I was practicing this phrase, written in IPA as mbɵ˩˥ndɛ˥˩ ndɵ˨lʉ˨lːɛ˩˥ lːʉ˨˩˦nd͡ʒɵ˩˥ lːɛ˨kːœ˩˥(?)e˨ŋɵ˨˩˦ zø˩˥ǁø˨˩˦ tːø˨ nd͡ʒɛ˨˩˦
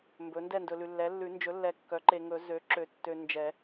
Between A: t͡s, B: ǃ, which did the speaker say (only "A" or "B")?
B